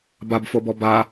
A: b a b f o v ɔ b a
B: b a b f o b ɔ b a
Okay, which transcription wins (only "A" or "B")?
B